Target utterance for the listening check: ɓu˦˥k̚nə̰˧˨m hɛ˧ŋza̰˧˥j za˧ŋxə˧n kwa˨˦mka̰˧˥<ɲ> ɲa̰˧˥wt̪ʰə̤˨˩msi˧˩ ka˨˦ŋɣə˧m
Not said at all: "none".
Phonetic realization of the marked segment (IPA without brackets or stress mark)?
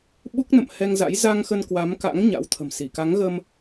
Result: ŋ